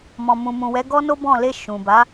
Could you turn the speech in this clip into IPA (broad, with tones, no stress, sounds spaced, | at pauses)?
m ɔ̃˨ m ũ˨ m ũ˨ w ɛ˨˦ ɡ ɔ˦ n o˦ b ɔ̃˦˨ l e˧ ʃ ũ˨ b a˨˦